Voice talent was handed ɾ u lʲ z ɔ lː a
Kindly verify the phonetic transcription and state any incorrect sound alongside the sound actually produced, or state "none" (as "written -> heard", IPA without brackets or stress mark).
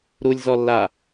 none